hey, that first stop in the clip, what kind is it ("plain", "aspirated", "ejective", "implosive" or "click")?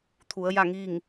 aspirated